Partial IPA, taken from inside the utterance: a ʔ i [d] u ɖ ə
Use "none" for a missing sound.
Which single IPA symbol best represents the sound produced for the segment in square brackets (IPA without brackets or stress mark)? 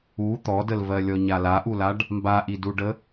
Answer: d